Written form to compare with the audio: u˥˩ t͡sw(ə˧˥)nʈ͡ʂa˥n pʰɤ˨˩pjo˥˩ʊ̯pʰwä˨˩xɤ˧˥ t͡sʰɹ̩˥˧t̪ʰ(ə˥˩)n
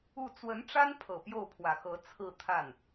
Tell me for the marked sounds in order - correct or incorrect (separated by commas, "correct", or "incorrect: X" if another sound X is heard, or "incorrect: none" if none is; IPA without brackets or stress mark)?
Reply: correct, incorrect: a˥˩